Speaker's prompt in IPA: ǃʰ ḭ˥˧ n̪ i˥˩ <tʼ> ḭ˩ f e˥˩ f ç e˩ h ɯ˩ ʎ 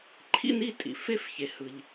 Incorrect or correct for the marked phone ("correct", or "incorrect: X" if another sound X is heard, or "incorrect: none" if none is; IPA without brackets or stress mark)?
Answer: correct